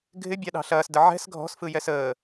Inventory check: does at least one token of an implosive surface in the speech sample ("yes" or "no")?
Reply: yes